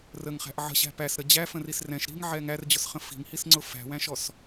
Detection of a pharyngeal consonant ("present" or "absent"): present